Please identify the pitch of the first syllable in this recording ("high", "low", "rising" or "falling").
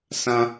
high